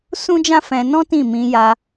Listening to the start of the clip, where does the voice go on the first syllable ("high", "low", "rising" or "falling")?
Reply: high